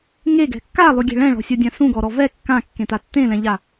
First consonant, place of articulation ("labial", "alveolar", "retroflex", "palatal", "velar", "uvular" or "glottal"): velar